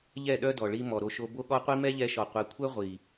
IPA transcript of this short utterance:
ʎ ɛ˦˨ ɗ œ˦ d ɔ˨ ɭ i˧ m ɔ˨ ɾ o˧ ʃ o˧ b o˧ ɠ ɔ˧ qʷ i˧ m ɛ˦ ʎ ɛ˧ ʃ ɔ˨ qʷ ɛ˨ kʷʰ œ˦ ʁʷ i˨

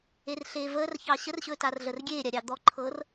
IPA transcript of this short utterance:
e r ɬ eː v əː r ç ɑ ɕ ə r ɕ ɵ t a r ɮ ə r ɡʲ eː ɾʲ a ɾʲ ɑ d̪ ɔ ǃʰ ɤː r

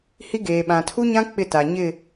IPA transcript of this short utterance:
h i˦ ɡ eː˨ ɓ ã˨ tʰ u˦ ɲ ã˦ k͡p ɪ˦˨ t a˨ ɲ ɪ˦˨

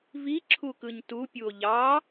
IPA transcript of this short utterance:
v i ǁʰ u k ɯ ɲ t u pʲ u o̯ ʎ ɑ

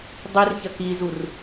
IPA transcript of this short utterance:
dˤ i r ç ɐ k i z u r

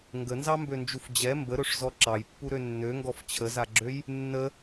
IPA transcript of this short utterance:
ŋ ɡ ə n z ɑ m b ø n d͡ʒ u f d͡ʑ ɛ m b ə ɾ ɵ ʂ z ɔ ǁ ɑ j pː u ɾ ø nː ø ŋ ɡ ɔ f t͡ɕʰ ə z a ɡ͡ǁ ø j | nː ə

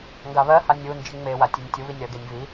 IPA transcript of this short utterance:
ŋ ɡ a β ɜ h a nʲ u n d͡ʒ i ŋ͡m e w a tʲ u nʲ tʲ u β i nʲ ɾ ɜ ɡ e nʲ β i

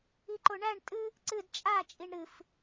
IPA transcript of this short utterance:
i ǃ o ɳ æ ɳ tʼ ɨ | ǀ ɨ d t͡ʃʼ a t͡ʃʼ i ɳ ɾ ɨ f

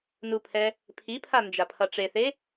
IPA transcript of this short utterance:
n u pʰ ɛ | pʰ i pʰ a n d͡ʒ a pʰ ʌ ʈ͡ʂ e θ e

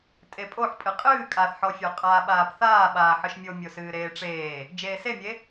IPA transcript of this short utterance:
tʼ e pʼ o ħ pʼ ɨ qʼ ɨː kʼ a θ ħ ɔ fʲ o qʼ aː ɓ aː p θ aː ɓ aː ħ ɨ ʃ mʲ o mʲ o s ɨː ɾ eː ʈ͡ʂ eː | d͡ʒ eː s e mʲ e

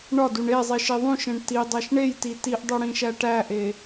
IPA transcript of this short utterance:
ɳ ɒ d u ɳ e zˤ i ʃ i ðˤ ũ ʃ ẽ ɳ t i dˤ æ ʃ ɳ e j t i t i ʔ dˤ o ɽ ĩ ʃ æ ʈ æ ʔ e

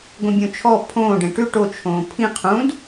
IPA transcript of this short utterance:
ɡʷ ĩ bʲ õ t͡ʃʰ ɔ pʰ õː ɖ ẽ ʈ ʉ ʈ o t͡ʃʰ õː pʰ ĩ qʰ ũ d

